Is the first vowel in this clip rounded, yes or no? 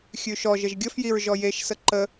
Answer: yes